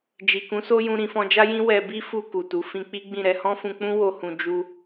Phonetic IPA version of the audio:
d͡ʒi˨kũ˨˦so˦jũ˧ ɾĩ˧fɔ̃˧d͡ʒa˦jĩ˦ wɛ˧bi˦ fu˧ ku˨tu˨˦ fĩ˧k͡pi˦ɡ͡bĩ˦˨ ɾɛ˧hɔ̃˦fũ˧k͡pũ˦ wo˦hũ˧ d͡ʒu˧

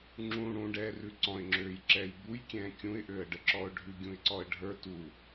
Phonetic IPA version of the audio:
ŋ͡ǁũ ɽũɖɛːrʉ ǀɔ̃ɪ̯ŋ͡ǁøːjǁɛːj bujkʲɛ̃ː kʲũɪ̯ʔøə̯ɖəǁɔʊ̯ ɖʱʉɡʲũɪ̯ǀɔə̯ ɖʱə˞ tu

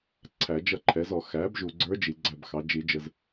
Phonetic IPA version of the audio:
ǀʰæ˨˩˦d͡ʒʌ˥˩ǃʰɛ˩˥zɔ˨˩˦ xæ˩˥bʒu˨ɡ͡ǀə˞˧˥ d͡ʒi˨ɡ͡ǀæ˥˩bxɑ˩˥ d͡ʒi˨˩˦d͡ʒə˨z

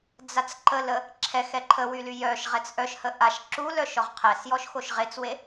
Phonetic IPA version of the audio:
d͡zat͡sǃələ | ǁʰɛx ɛǃʰəwy lyjœʃʁɛt͡s ʔœʃhə ʔaʃ ǁulœ ʃɔʁqʰɛsjɔʃ xoʃʁet͡swe

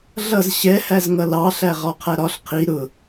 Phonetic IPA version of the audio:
ɮʌz ɕɛhæz ŋʌlɑ ɬæʁɒqʰæɾɒɬ qʰi ɾʊ

